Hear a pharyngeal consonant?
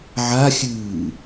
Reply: yes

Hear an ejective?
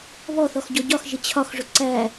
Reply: no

